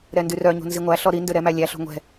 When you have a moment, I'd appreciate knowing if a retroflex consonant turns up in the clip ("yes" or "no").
no